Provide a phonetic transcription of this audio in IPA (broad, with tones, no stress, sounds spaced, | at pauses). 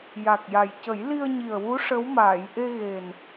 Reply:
j a˨˩ k̚ j a˨˩ j c ə˨˩˦ j l i˧ ə̯ ɲ i˨˩ ə̯ w u˧˥ ʂ ə˧˥ w m aː˨˩˨ j ʔ e˧ ɣ e˨˩ n